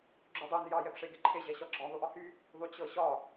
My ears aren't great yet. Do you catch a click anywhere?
yes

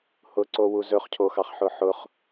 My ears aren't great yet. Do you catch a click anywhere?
yes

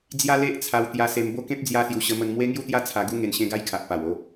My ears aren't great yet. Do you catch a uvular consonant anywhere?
no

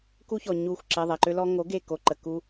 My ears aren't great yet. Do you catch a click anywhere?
yes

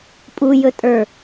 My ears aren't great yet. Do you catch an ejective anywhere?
yes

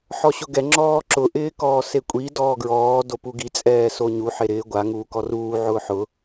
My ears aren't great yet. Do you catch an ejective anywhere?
yes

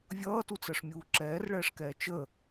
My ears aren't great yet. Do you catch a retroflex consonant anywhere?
yes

